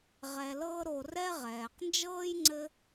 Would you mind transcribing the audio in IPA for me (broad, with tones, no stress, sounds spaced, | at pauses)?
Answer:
ʁ ɛ˨ l ɤː˦ ɾ o˨ r ɛ˦ ʁ ɛː˩ q n d͡ʒ ɤː˥ j ŋ͡ǀ ɘ˦